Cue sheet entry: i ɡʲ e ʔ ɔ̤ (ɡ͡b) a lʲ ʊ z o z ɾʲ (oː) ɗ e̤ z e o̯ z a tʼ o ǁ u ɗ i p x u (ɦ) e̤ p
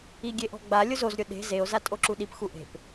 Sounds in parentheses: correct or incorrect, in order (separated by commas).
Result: correct, incorrect, incorrect